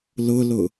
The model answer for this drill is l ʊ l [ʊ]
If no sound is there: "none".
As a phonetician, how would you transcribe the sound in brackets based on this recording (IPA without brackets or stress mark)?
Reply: ʊ